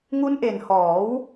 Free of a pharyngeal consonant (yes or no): yes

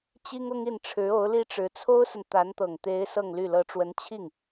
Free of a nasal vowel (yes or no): yes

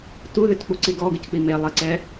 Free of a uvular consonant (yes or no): yes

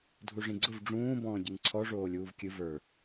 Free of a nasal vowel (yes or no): no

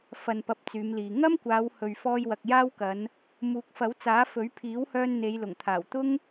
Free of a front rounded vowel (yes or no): no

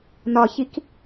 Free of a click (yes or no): yes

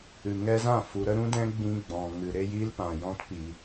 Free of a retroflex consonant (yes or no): yes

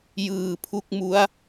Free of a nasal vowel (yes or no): yes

